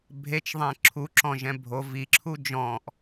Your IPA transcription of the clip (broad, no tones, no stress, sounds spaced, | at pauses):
bʱ e t͡ʃ ðˤ ɛ̃ ǁʰ u ǁ ɔ̃ ʒ ɛ̃ bʱ o v i ǁʰ u d͡ʒ ɔ̃ ʔ